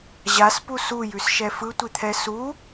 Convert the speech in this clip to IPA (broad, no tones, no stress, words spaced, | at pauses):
ʑaspu sujʉsʃɛ fɯtʷit̪ʰɛ su